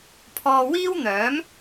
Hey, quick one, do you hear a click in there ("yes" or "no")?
no